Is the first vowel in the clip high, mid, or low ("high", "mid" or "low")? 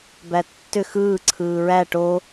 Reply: low